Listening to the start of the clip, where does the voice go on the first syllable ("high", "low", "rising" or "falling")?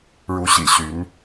rising